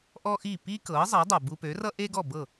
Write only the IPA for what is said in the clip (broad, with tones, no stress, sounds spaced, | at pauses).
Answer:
ʔ ɔ˥ ʔ i˥˩ p i˥ k ɤ˩˥ zˤ ʌ˩˥ dˤ ʌ˩ b u˧ p ø˩˥ r ʌ˥ ʔ e˥ ɡ ɔ˥˩ b ɤ˥˩